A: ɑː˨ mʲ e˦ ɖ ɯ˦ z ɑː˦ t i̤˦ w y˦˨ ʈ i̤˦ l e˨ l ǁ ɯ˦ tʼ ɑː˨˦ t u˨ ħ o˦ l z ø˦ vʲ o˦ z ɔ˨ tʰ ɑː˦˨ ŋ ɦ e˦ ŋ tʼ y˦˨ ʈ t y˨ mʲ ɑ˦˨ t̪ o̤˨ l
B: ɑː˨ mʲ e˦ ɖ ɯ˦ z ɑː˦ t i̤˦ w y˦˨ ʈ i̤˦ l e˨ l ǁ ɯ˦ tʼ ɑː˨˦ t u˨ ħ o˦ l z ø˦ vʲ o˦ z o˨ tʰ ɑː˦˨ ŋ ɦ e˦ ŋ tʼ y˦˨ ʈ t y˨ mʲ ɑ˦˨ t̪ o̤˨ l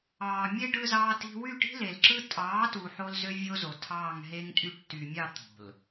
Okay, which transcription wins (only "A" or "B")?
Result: B